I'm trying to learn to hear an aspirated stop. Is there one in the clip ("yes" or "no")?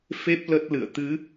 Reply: no